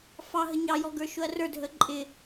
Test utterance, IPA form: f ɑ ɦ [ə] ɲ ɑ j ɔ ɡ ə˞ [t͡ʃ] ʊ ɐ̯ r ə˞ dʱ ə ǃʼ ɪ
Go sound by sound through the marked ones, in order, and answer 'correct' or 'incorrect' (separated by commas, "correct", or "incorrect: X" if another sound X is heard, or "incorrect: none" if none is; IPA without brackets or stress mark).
correct, incorrect: ʃ